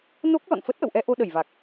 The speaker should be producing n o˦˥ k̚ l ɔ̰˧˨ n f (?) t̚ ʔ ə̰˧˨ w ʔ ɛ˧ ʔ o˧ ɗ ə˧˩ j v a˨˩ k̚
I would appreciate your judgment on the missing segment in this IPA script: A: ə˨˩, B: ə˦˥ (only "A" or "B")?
B